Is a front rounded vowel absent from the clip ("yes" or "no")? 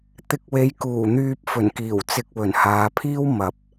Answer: no